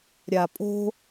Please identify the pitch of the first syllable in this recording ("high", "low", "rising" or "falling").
low